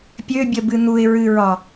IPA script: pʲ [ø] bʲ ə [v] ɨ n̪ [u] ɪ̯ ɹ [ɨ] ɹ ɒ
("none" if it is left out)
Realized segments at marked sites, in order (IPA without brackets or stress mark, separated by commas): ø, b, u, ɨ